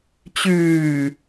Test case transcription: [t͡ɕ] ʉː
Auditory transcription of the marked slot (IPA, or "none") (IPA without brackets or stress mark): t͡ɕ